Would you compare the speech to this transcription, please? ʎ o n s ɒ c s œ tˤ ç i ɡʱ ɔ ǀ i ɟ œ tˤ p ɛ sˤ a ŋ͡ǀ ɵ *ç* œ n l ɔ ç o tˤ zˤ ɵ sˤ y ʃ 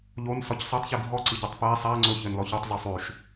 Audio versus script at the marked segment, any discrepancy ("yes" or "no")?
no